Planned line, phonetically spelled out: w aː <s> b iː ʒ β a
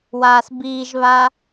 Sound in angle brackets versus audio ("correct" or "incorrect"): correct